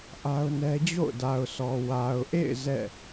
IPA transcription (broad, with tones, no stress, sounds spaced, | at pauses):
ʔ a˦ ʊ̯ n ɛ˦ d͡ʑ o̰˦˨ ʊ̯ d a˨ ʊ̯ s ɔ˨ w a˨ ʊ̯ ʔ ḛ˦˨ ɪ̯ z ɛ̰˦˨